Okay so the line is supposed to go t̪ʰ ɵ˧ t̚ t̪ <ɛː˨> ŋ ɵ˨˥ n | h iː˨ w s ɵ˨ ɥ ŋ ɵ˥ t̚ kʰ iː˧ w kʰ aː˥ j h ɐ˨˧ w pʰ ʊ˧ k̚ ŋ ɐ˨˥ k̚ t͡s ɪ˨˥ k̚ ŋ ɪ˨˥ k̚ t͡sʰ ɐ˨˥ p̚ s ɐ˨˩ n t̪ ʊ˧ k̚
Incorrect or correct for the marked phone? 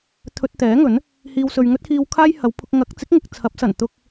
incorrect: ɛː˨˥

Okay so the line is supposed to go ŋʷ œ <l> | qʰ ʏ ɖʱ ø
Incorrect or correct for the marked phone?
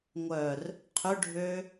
incorrect: r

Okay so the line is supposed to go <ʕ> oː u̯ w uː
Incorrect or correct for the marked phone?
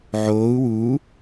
correct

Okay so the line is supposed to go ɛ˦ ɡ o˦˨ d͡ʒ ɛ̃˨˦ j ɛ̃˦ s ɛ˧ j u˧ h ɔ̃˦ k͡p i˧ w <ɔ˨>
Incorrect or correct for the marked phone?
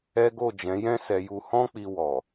correct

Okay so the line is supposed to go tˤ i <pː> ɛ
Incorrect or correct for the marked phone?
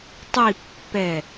correct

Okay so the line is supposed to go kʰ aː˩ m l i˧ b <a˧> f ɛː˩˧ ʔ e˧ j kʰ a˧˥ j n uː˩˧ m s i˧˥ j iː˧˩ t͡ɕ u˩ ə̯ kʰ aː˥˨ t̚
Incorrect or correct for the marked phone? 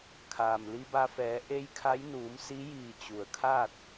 correct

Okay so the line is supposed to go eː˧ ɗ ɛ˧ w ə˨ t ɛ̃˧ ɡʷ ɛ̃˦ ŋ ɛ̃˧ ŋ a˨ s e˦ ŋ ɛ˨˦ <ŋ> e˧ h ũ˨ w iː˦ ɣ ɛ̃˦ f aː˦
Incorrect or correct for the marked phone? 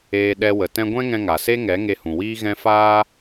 correct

